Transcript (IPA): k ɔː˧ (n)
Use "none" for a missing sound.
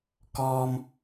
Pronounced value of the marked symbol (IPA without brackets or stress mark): m